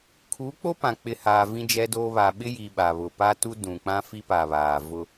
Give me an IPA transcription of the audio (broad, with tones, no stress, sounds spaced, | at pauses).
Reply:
kʰ uː˨˦ k͡p o˦ p ã˨ k͡p ɪ˨ h aː˨ v ĩ˦ d͡ʒ ɛ˦ d oː˦ β aː˨ ɓ ɪ˦ j iː˨ ɓ a˨ β ʊ˨ p a˦ t u˦ d ũ˨ k͡p ã˦ f i˦ p a˨ β aː˨ v ʊ˦